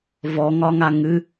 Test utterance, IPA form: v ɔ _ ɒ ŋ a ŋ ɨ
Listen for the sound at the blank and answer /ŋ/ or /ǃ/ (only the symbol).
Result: ŋ